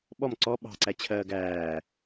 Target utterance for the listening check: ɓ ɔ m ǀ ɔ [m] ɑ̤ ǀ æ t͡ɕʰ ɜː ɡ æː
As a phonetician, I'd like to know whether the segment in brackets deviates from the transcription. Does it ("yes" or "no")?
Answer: yes